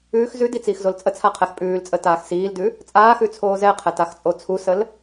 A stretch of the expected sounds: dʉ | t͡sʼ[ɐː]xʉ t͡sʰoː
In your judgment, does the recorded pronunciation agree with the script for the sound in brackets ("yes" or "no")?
no